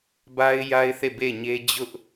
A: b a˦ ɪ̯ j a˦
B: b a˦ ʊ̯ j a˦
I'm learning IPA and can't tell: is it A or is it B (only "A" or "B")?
A